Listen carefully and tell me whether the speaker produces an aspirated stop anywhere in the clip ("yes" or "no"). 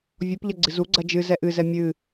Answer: no